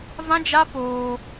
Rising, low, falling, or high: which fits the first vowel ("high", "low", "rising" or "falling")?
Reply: high